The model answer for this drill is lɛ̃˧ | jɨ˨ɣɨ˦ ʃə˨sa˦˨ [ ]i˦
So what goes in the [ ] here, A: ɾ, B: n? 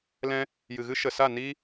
B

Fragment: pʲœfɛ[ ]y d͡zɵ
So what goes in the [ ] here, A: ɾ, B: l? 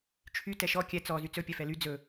B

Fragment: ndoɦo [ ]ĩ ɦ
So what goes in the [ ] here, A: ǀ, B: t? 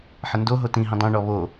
B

